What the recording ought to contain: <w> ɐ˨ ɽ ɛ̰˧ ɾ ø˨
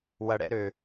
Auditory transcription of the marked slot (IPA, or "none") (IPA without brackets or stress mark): w